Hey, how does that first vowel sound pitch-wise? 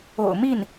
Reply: low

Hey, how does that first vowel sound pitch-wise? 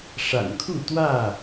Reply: low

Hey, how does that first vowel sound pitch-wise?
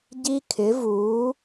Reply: high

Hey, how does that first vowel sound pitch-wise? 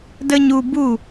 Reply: high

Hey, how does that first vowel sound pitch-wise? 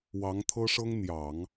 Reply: rising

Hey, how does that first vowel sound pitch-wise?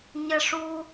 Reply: high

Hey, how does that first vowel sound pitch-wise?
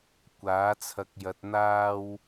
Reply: rising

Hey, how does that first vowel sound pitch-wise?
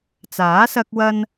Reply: rising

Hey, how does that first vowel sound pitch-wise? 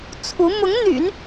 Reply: rising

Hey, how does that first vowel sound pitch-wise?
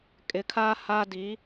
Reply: rising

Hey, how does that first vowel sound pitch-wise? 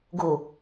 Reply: low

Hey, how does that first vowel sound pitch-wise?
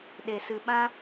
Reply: low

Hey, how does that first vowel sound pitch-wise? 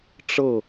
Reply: falling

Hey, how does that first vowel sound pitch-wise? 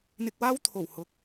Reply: low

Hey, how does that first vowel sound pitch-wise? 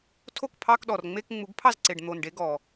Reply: falling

